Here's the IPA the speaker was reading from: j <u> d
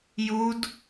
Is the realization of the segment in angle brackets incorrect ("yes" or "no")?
no